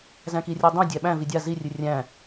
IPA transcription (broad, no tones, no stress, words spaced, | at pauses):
zæ̃kirʲodˤõ dʲæɓæ̃ vidʲa zirʲɨ rʲæ̃